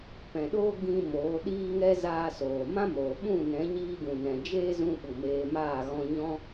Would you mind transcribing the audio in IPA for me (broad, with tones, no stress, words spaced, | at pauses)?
pɛ̃˨ɗoː˦ ɡĩ˧ moː˨˦ɗiː˦ŋɛ˦ zaː˧soː˨ mã˦moː˨ɓũ˦˨ nɛ̃˨˦ɲiː˧ɡũ˨ nɛ̃˨d͡ʒeː˦ zũ˧ɓu˨ meː˧maː˦˨ ɣɔ̃˧ɲɔ̃˦